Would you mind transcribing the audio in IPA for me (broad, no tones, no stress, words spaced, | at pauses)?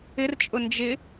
ɪrt͡ʃʼʊ nd͡ʒɪ